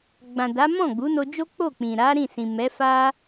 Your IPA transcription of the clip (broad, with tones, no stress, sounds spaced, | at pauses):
ɡ͡b ã˨ d a˨˦ m ɔ̃˦˨ ɡ͡b u˨˦ n o˧ d͡ʒ o˦ k͡p o˦˨ k͡p ĩ˨ ɾ a˨˦ ɾ ĩ˦˨ s ĩ˨ m ɛ˨˦ f a˦